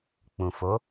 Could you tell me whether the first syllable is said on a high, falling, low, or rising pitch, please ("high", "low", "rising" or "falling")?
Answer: low